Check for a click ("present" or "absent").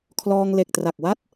absent